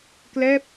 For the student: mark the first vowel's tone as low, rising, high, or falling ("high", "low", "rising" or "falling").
falling